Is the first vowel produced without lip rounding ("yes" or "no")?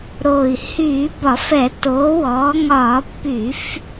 no